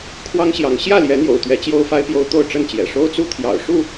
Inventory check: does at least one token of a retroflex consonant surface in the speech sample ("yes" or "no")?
yes